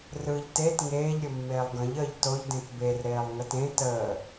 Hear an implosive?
no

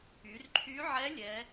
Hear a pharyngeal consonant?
yes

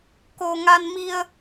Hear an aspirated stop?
no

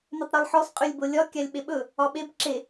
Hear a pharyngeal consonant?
yes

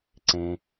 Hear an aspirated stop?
no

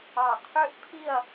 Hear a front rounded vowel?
yes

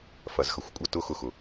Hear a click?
no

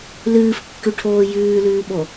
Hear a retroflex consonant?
yes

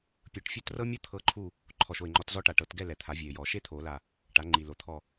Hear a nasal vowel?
no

